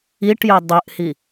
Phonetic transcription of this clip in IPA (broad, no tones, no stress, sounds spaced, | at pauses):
i ʈ j ɵ dˤ ʉ ʔ h i